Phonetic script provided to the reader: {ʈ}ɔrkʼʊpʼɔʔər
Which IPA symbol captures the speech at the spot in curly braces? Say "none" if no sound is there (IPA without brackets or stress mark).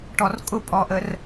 ʈ